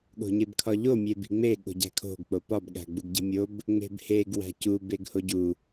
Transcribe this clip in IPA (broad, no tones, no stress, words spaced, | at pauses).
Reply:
ɠo̤ɲebkʰɒʎo mʲebi̤ŋ͡me ɠo̤ɟæ̤kʰo̤ɡ k͡popɒb ɠæ̤ɡ͡buɡɟi̤mʲob | ŋ͡me̤bheɡ wæ̤cu beɡhoɟu